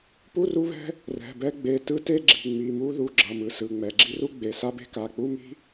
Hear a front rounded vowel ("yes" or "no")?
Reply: no